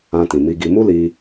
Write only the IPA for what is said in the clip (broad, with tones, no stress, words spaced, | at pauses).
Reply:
ã˧tĩ˨mi˧ɡi˧ mu˦li˧